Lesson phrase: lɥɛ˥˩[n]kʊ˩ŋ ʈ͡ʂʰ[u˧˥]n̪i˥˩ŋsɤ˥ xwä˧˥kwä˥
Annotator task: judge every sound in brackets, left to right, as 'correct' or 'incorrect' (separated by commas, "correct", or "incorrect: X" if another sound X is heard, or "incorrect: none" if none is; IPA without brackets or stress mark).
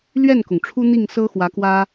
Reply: correct, incorrect: u˥